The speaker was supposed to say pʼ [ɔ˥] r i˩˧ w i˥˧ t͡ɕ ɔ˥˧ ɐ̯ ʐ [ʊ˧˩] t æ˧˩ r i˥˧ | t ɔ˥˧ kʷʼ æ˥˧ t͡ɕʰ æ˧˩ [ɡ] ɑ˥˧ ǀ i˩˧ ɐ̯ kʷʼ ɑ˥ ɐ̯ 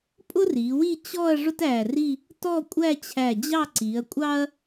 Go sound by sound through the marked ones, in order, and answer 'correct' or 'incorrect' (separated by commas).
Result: incorrect, incorrect, incorrect